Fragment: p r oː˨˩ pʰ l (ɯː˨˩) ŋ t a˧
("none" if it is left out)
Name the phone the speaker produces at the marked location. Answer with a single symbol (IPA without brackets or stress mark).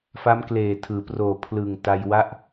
ɯː˨˩